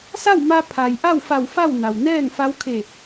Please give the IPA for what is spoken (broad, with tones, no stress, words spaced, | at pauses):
sa˥˨wma˧ pʰa˩j ʔa˥˨wfa˧˩w fa˥˨wna˩w nɛː˥˨ŋfa˧˥wkʰe˧˩